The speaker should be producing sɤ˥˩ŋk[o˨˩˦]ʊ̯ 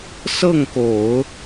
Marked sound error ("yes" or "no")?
no